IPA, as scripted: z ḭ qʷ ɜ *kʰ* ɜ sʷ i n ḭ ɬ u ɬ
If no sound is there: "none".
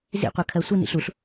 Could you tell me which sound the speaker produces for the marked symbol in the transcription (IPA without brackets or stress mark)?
kʰ